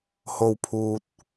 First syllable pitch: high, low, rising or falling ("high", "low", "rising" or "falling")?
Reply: low